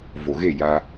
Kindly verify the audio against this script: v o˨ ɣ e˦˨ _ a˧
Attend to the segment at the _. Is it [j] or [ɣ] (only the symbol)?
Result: j